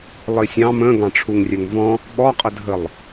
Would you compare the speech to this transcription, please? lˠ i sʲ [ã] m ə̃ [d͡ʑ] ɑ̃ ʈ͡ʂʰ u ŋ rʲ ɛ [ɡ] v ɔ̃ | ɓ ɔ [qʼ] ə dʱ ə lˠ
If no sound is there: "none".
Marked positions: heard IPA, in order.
ɑ̃, ɡ, ŋ, qʼ

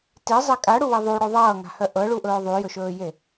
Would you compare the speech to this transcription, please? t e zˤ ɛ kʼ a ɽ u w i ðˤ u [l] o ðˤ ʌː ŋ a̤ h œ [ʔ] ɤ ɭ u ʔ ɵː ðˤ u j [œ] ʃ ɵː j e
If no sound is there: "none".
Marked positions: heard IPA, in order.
ɽ, ʔ, ɵ

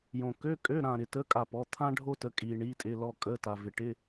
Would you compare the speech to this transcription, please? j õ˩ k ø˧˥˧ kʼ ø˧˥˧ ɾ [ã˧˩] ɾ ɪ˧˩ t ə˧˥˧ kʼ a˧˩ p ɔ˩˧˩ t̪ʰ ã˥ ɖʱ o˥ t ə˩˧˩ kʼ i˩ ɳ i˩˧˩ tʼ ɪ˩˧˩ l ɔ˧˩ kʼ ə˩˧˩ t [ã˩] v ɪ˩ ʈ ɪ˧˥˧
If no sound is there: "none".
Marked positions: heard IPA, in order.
ã˧˩, a˩

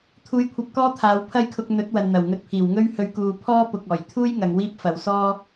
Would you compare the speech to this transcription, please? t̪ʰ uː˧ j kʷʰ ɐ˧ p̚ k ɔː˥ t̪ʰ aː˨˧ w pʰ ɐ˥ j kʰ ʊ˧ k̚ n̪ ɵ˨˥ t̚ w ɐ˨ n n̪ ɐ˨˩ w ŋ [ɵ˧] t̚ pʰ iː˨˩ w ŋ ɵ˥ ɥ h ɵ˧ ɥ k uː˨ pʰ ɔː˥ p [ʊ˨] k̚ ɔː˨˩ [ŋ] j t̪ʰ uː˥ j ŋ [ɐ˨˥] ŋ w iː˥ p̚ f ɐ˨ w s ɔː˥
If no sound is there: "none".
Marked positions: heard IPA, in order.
ɵ˧, ʊ˨, none, ɐ˨˧

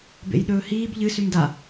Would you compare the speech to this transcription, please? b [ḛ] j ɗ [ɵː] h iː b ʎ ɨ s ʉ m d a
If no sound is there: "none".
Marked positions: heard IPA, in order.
ḛ, ɵː

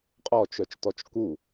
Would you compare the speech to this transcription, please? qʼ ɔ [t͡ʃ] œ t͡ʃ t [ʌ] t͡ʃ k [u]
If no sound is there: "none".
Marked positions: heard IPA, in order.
t͡ʃ, ɔ, u

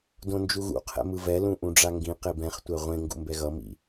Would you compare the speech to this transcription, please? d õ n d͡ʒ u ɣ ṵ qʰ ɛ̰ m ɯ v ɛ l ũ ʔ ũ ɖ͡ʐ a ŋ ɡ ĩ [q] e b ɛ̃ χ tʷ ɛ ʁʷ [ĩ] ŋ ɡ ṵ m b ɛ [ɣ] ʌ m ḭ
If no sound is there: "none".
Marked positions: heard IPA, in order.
q, ẽ, ɣ

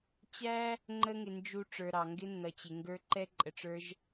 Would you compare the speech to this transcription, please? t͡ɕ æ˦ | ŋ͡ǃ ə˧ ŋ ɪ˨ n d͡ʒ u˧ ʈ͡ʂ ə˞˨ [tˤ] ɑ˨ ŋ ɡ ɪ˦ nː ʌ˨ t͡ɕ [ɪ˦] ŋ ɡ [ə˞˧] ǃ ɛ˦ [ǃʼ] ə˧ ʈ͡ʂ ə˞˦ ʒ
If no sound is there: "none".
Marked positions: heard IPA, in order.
ɾ, ɪ˨, ə˞˧, ǃʼ

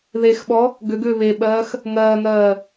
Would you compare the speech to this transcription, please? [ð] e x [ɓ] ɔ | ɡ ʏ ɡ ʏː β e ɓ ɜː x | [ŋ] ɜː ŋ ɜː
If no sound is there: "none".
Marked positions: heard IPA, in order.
ð, ɓ, ŋ

